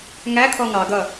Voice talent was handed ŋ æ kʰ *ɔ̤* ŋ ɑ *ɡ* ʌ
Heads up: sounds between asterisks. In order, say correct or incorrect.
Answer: incorrect, correct

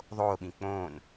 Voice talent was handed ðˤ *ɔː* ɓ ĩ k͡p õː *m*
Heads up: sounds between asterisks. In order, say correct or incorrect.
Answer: incorrect, incorrect

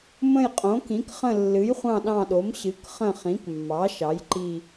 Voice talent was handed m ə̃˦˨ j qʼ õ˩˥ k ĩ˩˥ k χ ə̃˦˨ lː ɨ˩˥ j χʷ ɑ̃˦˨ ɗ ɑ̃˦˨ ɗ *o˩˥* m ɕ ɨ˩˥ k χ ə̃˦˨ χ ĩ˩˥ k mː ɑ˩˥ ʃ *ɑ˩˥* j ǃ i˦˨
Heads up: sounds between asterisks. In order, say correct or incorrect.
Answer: correct, correct

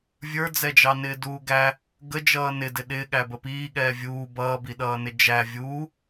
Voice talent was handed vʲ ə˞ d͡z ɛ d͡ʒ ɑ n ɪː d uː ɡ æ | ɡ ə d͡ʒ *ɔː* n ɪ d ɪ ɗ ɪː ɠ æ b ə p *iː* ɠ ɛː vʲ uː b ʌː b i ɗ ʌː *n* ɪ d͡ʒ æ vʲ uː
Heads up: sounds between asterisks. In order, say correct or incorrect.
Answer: incorrect, correct, correct

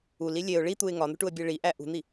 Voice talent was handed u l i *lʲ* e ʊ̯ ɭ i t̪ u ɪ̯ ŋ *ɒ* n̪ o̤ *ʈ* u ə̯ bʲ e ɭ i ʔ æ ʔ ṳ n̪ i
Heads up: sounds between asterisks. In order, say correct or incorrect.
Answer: correct, correct, correct

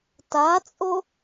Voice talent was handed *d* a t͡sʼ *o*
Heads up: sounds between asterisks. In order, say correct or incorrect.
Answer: incorrect, correct

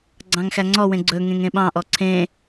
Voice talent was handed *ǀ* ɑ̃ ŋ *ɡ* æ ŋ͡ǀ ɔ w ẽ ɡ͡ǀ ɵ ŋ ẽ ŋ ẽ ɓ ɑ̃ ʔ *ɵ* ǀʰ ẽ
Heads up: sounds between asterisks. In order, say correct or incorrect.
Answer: incorrect, incorrect, incorrect

